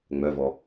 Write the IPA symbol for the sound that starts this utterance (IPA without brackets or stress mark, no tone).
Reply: ŋ͡m